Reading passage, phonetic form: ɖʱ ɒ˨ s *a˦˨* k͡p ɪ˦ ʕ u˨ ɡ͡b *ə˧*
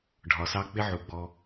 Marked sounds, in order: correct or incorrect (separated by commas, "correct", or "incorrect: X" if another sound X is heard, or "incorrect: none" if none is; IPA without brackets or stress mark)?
incorrect: ɑ˦˨, incorrect: ɔ˧